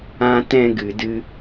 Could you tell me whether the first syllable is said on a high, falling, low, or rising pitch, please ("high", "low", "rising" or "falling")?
high